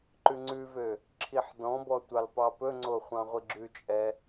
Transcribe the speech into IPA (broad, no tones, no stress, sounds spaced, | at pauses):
ǃ ʉ ŋ͡ǀ ʉ v ø | ǁʰ i ħ d ɔ̃ b ɔ tʷ ɑ l p ɑ p ɵ ŋ͡ǀ o χʷ ɑ̃ ʁʷ i ɡ͡ǁ ʉ t͡ʃʼ ɛ